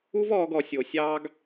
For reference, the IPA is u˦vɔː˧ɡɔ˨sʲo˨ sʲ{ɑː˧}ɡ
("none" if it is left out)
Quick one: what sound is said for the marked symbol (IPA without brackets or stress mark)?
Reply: ɑː˧